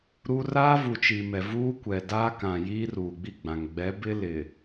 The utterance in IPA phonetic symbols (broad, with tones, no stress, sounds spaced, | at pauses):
ɾ u˦ r aː˦ v u˨ t͡ʃ i˨ m ɛ˨ v uː˦ kʷ ɛ˨ d aː˦ k ã˨ j iː˦ r uː˨ ɡ͡b i˦˨ ɡ͡b ã˨ ŋ ɡ͡b ɛ˨˦ b ɪ˦ l ɪ˨